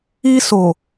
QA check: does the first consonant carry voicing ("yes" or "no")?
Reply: no